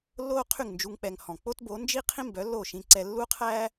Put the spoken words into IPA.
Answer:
lːoː˥qʰy˥˩ŋnd͡ʒu˧ŋ k͡pɛ˧ŋ hɔ̃˩ k͡po˥tbo˩˥nd͡ʒi˥qʰĩ˥ mbœ˩˥lːo˥˩ ʃĩ˧ǀɛ˧ lːu˥qʰæː˥

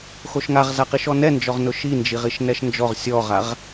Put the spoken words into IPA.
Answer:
xoʃŋaʁzaqiʃ ɔnɛnd͡ʒɔʁnʊ ʃind͡ʒiʁiʃ nɛʃnd͡ʒɔʁ sʲɔʁaʁ

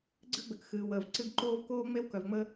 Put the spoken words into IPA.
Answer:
ɡ͡ǀɨ˥ɡ͡bɘ˨k xɨː˩wəː˩vǀɨ˦ɡǃoː˥v koː˥ŋ͡me˥w kœ˨vŋ͡məː˥

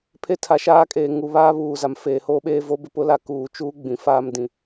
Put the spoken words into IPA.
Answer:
pʰe˦tʰa˨ʃaː˦kʼeː˨ ŋu˨βaː˦ βuː˨ za˨mfeː˨hoː˦ɓeː˦ vo˦bɪ˦ pʊ˦la˦ kuː˨t͡ʃuː˦ ɡ͡bĩ˨faː˦mdĩ˨

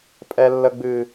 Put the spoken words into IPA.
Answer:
pʼɛ˨lːə˨ɡ͡bɨ˨

